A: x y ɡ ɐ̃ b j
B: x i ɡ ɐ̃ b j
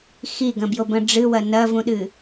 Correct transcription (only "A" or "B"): B